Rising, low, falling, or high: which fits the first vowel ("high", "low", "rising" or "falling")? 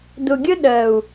low